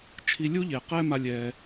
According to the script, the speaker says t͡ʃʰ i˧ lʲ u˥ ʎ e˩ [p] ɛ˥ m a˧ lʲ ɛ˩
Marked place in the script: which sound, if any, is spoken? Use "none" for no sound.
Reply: q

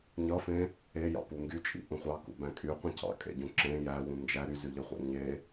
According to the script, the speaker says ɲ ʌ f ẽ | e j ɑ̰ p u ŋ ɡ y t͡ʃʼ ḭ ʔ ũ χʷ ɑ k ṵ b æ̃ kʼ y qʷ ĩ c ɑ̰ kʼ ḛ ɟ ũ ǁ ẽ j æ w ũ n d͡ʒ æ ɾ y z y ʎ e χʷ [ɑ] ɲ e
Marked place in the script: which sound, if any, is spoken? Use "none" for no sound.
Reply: ɑ̰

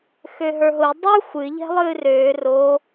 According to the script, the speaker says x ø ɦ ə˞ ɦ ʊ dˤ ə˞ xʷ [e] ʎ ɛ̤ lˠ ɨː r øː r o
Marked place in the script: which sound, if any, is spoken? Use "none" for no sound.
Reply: ɨ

